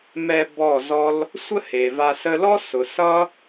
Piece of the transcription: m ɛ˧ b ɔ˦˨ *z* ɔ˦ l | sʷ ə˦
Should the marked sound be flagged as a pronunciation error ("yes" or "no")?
no